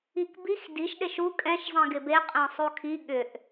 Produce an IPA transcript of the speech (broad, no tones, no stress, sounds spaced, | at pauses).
i k b i x d i ʃ ɗ e ʃ u kʼ ɛ̃ ʃ zˤ ĩ ɡ ɪ b e qʼ ɛ̃ sˤ u kʰ i ɠ ʏ ʔ